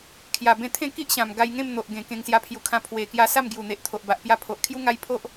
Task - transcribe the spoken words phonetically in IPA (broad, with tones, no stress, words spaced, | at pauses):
kʰja˨˩bẽ˧t̪ʰẽ˥˧ ki˦ʔɕã˨˩m ɡa˧jŋẽ˥˧m n̪o˨ʔɡẽ˨˩ kẽ˧ŋsja˧pʰju˨˩kʰã˧ pʰwe˨˩ kja˧ sa˥˧mɡju˨˩n̪e˨ʔt̪ʰo˨ʔ ba˨ʔpja˧pʰo˨ʔkʰju˦ ŋa˦jpʰo˦ʔ